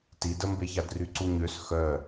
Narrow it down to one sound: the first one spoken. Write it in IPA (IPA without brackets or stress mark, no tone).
t